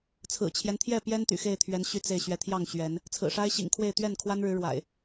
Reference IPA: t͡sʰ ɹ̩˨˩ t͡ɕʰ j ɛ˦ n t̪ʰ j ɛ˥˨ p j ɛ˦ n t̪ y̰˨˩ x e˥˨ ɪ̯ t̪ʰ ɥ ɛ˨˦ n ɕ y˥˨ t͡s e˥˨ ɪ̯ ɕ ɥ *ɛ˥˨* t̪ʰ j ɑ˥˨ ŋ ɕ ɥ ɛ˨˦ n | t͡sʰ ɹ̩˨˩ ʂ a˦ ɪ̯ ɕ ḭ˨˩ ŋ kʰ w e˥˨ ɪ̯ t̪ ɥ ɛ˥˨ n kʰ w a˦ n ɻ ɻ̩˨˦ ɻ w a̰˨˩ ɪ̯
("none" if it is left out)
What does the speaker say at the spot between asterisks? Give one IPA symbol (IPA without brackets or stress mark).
ɛ˨˦